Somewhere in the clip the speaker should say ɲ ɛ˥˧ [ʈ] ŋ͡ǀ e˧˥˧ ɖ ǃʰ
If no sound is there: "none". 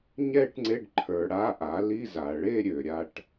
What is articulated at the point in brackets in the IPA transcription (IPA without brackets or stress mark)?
ʈ